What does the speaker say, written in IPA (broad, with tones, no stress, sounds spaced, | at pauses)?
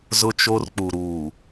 z ʊ˦ t͡ʃ o˦ r k͡p u˨ ɾ uː˨